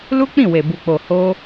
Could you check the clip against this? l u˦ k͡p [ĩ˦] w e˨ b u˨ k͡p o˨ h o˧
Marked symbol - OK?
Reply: no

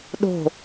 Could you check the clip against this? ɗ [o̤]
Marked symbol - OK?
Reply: yes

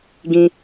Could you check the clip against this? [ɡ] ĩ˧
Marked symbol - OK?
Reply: yes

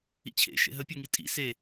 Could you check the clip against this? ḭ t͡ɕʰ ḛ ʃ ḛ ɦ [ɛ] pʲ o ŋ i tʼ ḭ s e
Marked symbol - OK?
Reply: no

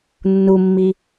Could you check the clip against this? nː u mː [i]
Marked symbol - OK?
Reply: yes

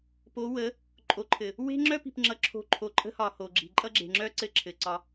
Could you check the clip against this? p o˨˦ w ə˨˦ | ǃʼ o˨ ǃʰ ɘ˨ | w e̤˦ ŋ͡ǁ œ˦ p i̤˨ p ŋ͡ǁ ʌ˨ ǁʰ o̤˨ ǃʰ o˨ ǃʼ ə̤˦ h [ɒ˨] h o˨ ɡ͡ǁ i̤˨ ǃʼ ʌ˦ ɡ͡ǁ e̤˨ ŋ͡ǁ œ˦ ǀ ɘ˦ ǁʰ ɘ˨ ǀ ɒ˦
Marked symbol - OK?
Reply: yes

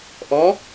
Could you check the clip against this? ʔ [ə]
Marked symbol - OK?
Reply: no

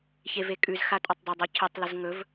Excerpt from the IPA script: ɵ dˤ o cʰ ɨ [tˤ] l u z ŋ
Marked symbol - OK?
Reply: yes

